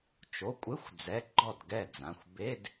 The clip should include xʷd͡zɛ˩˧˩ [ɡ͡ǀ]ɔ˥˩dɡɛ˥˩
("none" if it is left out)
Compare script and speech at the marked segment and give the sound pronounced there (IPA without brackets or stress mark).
ɡ͡ǃ